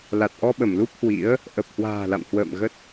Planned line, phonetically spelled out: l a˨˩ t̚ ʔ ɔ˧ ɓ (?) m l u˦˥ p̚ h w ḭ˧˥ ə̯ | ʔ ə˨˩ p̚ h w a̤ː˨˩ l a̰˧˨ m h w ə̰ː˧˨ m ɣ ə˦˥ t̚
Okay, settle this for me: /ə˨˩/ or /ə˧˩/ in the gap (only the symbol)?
ə˧˩